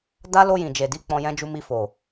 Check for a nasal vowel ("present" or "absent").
present